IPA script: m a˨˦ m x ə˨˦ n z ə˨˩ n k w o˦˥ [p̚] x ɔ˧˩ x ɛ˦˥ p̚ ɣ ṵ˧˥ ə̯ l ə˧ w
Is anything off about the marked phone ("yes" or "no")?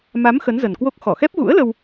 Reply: yes